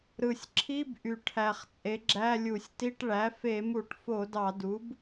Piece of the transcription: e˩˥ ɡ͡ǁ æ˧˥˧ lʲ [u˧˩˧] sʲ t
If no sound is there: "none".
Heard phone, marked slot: u˧˩˧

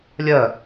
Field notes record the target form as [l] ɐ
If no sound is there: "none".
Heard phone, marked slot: lʲ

